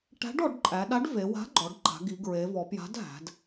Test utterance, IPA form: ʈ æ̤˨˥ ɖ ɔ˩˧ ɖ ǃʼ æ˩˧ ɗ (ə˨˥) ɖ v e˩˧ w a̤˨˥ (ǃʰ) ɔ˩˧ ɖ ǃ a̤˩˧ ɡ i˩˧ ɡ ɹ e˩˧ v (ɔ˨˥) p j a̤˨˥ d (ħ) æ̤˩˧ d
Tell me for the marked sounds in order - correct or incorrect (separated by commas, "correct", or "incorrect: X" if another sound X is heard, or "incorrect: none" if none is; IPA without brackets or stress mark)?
incorrect: a˨˥, incorrect: ɡ͡ǃ, incorrect: ɔ˩˧, incorrect: ɦ